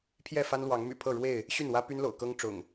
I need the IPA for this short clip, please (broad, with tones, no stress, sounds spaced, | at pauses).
pʰ j ɛ˥˨ f a˦ n l w ɑ˨˦ ŋ m y̰˨˩ pʰ ɤ˥˨ ɻ w e˥˨ ɪ̯ | ɕ y˥˨ n w ä˦ p y˦ n l o̰˨˩ ʊ̯ k ɤ˦ ŋ ʈ͡ʂ ʊ̰˨˩ ŋ